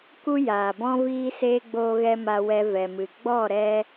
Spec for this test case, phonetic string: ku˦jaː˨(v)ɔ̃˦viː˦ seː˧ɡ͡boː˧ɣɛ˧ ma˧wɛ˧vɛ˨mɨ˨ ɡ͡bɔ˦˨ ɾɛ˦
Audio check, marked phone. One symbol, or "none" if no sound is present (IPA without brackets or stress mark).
b